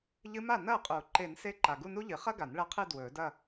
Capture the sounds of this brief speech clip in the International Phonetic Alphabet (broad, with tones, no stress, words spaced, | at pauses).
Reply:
ʎɨ˧˥ma˥˩nɐː˥˩qʼuː˨˩˦ ǃe˨˩˦nse˧˥ ǃa˨ɡu˥˧nu˥ʎɨ˨˩˦ χɐ˥ ɡa˨˩˦nɭɐ˧˥qʰɨ˥˧ dwɵː˨˩˦dɐ˥˧